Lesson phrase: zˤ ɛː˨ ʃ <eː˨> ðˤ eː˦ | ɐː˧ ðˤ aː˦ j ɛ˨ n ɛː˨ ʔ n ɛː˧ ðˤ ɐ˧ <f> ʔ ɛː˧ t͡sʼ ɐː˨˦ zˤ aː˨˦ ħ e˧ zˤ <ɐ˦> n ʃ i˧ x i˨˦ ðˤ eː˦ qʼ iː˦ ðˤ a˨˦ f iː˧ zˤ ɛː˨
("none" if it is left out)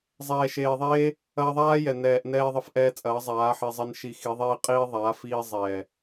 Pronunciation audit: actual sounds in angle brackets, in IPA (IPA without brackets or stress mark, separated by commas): eː˨, f, ɐ˦